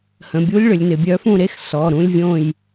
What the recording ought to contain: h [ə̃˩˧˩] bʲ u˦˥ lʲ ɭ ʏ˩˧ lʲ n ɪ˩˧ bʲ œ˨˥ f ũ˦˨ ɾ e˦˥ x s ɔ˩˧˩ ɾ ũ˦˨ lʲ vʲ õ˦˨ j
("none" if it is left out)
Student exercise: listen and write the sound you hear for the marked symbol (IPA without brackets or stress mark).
ə̃˩˧˩